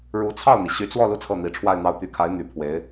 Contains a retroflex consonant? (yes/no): yes